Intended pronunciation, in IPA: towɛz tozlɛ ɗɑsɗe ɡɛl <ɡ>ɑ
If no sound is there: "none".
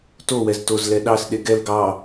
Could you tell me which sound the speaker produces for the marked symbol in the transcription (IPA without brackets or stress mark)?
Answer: ɡ